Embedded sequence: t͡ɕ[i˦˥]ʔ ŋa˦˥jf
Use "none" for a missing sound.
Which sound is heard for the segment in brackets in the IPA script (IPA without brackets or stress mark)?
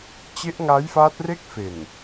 e˦˥